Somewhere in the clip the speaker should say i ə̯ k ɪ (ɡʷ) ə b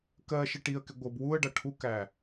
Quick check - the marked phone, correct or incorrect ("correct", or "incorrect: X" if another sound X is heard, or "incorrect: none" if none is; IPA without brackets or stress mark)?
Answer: correct